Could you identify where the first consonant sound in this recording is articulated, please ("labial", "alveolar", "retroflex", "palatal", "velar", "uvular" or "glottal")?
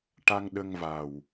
retroflex